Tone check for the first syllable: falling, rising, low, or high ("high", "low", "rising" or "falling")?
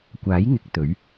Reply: rising